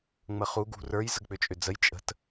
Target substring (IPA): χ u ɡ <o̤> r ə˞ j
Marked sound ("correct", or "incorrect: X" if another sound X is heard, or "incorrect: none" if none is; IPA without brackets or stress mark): incorrect: ṳ